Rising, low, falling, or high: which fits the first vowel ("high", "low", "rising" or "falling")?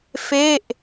falling